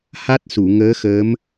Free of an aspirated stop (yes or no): yes